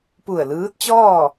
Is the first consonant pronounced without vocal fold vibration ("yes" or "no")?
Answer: yes